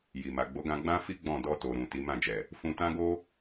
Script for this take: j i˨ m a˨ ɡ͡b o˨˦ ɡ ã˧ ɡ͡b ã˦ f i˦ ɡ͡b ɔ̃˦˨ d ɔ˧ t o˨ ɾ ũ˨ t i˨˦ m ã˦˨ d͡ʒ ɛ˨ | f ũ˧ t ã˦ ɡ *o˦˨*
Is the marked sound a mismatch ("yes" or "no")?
yes